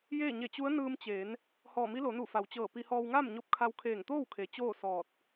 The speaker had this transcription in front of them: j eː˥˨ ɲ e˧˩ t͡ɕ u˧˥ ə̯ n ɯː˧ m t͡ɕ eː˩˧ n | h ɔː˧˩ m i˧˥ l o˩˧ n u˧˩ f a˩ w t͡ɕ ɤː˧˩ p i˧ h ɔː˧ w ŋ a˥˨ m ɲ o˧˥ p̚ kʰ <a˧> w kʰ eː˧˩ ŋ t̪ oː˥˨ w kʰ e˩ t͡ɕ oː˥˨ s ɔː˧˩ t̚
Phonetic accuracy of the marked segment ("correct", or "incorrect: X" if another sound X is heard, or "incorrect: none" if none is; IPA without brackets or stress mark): correct